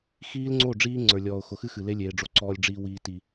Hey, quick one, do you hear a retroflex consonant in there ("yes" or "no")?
yes